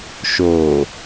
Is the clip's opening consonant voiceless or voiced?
voiceless